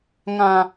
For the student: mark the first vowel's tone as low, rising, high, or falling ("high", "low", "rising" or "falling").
low